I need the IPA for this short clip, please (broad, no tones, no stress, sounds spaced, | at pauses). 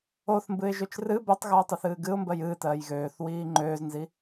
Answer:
o θ m b ɨ ɪ̯ ʒ ø t͡ʃ r ɨ b ɜ tˤ ɣ ɜː tˤ ɛ θ ɨː ɡ ɨ ʊ̯ m b ɜ j ɨː t ɜː j ɣ øː θ w iː ŋ͡ǃ øː z n z i